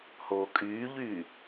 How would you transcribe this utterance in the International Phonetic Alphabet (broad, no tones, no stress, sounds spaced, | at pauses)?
h oː kʼ yː ʎ yː